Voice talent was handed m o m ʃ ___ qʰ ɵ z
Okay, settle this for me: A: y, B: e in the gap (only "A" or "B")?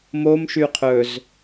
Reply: A